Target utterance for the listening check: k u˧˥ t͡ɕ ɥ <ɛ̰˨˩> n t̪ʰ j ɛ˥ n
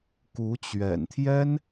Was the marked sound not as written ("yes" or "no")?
no